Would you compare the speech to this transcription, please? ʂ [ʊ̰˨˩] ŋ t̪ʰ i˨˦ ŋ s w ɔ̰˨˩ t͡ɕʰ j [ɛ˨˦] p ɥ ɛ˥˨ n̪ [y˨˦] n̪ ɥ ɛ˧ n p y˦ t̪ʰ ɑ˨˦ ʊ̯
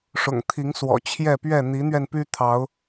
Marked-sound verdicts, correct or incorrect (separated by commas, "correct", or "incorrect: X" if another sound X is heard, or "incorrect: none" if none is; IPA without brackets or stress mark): correct, incorrect: ɛ˥˨, incorrect: i˨˦